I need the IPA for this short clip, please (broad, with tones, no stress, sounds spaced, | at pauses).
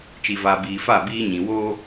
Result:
t͡ʃ i˨ v aː˨ b iː˨ f a˦˨ b iː˦ ɲ ĩ˨ w oː˦